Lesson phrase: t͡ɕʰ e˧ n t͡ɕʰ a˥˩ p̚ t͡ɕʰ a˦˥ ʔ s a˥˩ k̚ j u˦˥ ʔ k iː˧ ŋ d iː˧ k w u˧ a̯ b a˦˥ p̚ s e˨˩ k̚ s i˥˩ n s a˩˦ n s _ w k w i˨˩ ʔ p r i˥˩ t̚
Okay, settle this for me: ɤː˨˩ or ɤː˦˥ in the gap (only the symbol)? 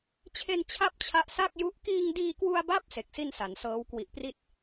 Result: ɤː˦˥